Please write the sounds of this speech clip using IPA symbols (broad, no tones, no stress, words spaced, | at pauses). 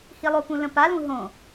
hilˠopũ lə̃palũ ɦõ